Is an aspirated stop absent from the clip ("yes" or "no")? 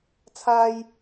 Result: no